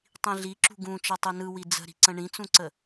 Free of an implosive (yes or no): yes